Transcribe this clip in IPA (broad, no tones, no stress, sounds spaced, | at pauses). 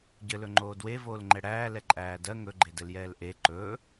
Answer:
ɟ ɘ l ɵ ŋ͡ǃ oː d w e v oː l ŋ͡ǃ ɛ ɽ æː l ɛ ǃʼ æː d ɜ ŋ ɵ ɡ͡ǃ e d ɘ l j ɛː l ʔ e ǃ ɵ